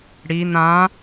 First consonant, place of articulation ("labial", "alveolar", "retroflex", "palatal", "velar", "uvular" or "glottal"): retroflex